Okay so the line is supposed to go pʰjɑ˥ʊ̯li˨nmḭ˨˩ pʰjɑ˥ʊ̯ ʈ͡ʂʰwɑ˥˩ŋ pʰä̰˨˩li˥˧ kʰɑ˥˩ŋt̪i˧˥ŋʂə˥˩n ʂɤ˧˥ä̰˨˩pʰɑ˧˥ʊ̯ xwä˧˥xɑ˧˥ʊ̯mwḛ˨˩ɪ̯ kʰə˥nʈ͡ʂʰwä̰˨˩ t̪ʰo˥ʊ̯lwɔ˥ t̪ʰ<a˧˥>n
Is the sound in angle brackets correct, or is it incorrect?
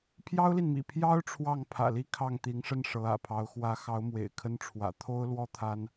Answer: incorrect